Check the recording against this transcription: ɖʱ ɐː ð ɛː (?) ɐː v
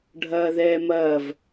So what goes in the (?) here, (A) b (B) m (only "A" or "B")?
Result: B